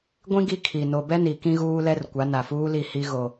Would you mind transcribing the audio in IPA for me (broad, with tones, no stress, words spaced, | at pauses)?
ɡʷĩ˦ ɡi˦kʰi˨ no˨bɛ˦ ni˨ kĩ˦ɣuː˦lɛ˦r kʷa˨˦na˨fuː˦li˦˨ hi˦ɣo˨